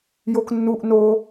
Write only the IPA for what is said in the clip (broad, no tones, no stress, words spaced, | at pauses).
joknːuʔ no